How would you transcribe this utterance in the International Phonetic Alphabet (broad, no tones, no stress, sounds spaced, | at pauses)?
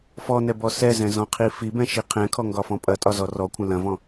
f ɔ n ɛ b ɔ s ɛ z ɛ̃ z ɔ̃ qʰ i f i b ɛ̃ ʃ i qʰ ɛ̃ kʰ ɔ ŋ ɡ ɒ f ɔ̃ pʼ ɐ tʼ ɒ z ɔ r ɔ kʷʰ ɐ̃ l ɐ̃ v ɔ̃